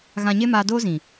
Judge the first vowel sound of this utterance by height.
low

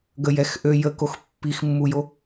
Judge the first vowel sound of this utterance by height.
mid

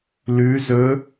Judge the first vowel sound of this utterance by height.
high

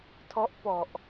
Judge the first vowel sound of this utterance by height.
mid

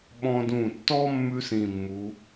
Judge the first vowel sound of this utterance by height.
mid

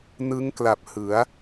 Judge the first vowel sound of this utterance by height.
high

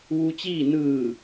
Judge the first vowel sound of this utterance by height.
high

